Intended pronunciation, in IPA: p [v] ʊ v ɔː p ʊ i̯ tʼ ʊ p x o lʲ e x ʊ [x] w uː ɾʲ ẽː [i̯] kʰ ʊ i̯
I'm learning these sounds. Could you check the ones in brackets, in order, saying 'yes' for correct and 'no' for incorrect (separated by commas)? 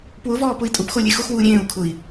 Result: no, yes, no